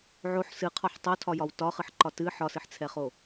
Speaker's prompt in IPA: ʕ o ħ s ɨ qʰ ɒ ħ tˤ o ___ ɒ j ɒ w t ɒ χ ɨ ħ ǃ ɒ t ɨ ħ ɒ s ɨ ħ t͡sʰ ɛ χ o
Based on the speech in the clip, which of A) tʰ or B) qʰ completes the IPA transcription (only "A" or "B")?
A